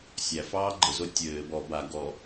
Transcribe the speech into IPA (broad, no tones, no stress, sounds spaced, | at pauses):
sʲ æ f ɑː ɡ͡ǃ ɘ z o tʲ ɘː b ɔ b a ɡ ɔ